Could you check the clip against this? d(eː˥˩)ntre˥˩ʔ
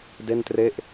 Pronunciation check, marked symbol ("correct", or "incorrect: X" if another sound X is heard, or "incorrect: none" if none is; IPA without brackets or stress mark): incorrect: e˥˩